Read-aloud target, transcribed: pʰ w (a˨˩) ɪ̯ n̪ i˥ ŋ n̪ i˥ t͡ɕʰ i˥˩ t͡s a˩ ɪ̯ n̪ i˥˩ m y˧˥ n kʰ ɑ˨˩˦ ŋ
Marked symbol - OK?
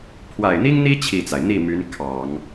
yes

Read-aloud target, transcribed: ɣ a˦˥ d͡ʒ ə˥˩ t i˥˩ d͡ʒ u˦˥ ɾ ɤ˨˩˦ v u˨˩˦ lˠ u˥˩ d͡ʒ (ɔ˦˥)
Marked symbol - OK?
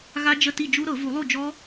yes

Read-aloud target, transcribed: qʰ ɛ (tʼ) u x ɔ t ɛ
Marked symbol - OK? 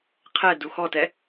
no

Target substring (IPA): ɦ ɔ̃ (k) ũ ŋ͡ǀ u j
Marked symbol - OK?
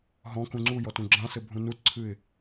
yes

